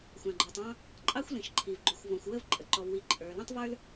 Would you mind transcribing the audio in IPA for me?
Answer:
xʷɑ̃˩ ɡ͡ǃɔ˩tˤɑ̃˥ | ǃʼɑ˥xʷlĩ˩ʃǃʰi˩v ɡ͡ǃu˩xʷvɔ̃˩xʷwə˥v ǃʼə˩ǃɔ˩vwi˩ ǃʼə˞˩lə̃˥tˤvə˞˥l

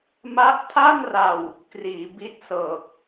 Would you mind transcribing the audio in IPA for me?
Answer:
ma˦˥ʔtʰa˥˩nra˨˩w | kriː˩˦bi˦˥t̚sɤː˨˩k̚

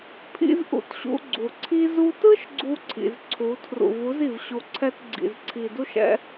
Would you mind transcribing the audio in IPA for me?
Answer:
pʰḭ˦zʔṵ˧tɕṵ˧ ɡ͡ǀu˨ǀʰi˦ zu˧tɯ˦ʃ ɡ͡ǀu˧ǀʰḭ˨z ǀʰu˨˦ tʰrṵ˨vu˨˦zi˨v ɕu˨ǀʰɛ˧t ɡ͡ǀḭ˨zǀʰi˨du˦ʃ ɛ̰˦

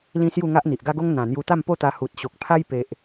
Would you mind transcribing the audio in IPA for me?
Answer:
lĩ˦sju˥˧ ŋa˦ʔn̪i˨ʔɡa˦ɡo˦ŋ n̪ã˨˩ n̪ju˧t̪a˥˧mpo˥˧t̪a˧ hu˨t̚ɕo˨k̚pʰa˦j pe˨ʔ

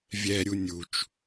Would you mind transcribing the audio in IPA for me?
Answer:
vʲɛɾʲu nʲut͡ʃ

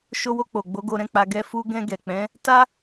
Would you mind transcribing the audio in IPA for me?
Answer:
ʃo˧wo˧k͡po˨ɡ͡bo˨˦ ɡo˧ɾɛ̃˦k͡pa˧ ɡɛ˦ fu˧ɡɛ̃˧ ɡɛ˨k͡pɛ̃˨˦ | ta˦

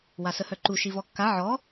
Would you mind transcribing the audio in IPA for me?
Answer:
wasəhœǃu ʃivɔkːa ʕɔ

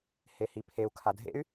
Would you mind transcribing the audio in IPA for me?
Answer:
hehipʰeu̯ kʰadʱḛy̯

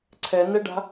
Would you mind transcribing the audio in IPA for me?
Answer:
ǀʰɛnɛɖa̤

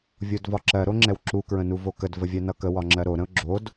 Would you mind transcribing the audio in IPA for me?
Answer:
vʲodvɒǁɜ ɾoŋ͡ǁɛwǁu kɹə̃nuvokəd vəvʲɜnʌkə wɒŋ͡ǁɜɾo ɾə̃ʊ̯ɡ͡ǁod

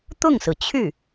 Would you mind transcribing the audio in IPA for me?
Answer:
t̪ʊ˥˩ŋsɹ̩˩t͡ɕʰy˥˩

